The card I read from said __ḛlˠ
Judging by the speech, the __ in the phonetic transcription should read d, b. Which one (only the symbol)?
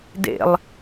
d